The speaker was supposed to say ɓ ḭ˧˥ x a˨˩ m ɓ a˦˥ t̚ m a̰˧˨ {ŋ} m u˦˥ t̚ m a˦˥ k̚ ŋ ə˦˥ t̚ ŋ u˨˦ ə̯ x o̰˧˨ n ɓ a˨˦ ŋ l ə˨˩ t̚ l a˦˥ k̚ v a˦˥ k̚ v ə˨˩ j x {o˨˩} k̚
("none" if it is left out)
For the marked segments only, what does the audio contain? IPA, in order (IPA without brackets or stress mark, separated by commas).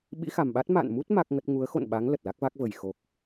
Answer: n, o˨˩